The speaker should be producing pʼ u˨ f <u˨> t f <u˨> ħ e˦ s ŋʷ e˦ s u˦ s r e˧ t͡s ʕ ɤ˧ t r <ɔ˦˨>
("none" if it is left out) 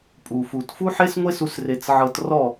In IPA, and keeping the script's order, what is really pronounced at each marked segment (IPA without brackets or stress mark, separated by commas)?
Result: u˨, u˦, ɔ˦˨